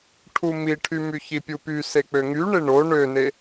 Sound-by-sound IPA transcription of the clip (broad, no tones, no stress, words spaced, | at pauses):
ʈʰumiʈʰymy çipʲupy sek͡pøŋyɳe ɳo ɳøne